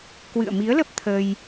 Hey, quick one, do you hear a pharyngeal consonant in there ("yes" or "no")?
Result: no